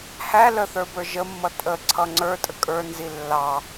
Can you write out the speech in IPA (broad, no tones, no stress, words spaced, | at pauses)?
hæ ləθə˞bə˞ ʒəmːʌ tʼəǀʰʌ ŋ͡ǀə˞tʼə kʼə˞nzi lːɑ